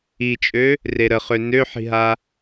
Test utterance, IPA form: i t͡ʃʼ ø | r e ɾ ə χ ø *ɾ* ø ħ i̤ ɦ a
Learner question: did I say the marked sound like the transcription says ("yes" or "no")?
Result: no